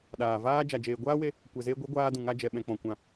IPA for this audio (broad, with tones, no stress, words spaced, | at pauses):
ɗaː˨vaː˦ d͡ʒa˨d͡ʒeː˨ɡʷaː˦we˧ | kʷɛ˨zeː˧ɡʷe˨˦ ɡʷaː˧dũ˨ŋa˧d͡ʒɛ˨ ɓɛ̃˨k͡pɔ̃˨kʷã˨